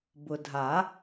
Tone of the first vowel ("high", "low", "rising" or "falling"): low